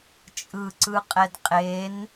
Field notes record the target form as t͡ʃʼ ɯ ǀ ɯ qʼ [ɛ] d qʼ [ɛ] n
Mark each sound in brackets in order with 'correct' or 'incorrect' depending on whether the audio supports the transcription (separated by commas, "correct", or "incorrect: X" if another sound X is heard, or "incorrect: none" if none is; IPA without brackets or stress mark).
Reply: correct, incorrect: e